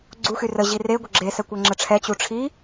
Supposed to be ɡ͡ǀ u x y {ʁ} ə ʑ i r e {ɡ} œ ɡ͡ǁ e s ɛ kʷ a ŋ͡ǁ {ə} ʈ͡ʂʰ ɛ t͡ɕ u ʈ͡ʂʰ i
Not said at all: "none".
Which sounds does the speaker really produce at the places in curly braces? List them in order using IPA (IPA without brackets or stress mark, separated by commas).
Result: r, ɡʷ, ə